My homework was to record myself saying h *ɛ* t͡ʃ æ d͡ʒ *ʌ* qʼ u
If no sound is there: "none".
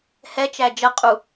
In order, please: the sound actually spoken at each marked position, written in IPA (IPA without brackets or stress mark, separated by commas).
ɛ, ʌ